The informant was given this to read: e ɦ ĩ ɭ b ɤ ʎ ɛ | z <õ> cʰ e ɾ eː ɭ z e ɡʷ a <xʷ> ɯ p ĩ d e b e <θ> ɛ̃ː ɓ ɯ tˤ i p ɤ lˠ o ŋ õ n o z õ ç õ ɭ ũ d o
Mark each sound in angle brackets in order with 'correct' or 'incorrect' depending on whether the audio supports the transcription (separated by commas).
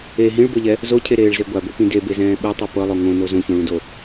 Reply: incorrect, incorrect, incorrect